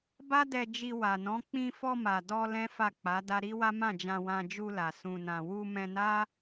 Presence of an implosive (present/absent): absent